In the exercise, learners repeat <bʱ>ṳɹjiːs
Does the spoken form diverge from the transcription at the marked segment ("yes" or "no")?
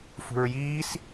yes